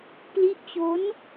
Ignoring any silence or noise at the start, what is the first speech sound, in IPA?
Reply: p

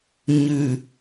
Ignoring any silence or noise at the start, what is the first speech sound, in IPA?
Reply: ɲ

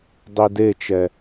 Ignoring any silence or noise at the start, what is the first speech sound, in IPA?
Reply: dˤ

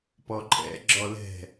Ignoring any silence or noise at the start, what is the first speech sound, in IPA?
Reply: p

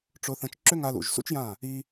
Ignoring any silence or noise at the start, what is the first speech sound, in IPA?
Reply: ʈ͡ʂ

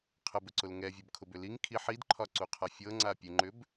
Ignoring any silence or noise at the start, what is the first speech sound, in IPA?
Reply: qʰ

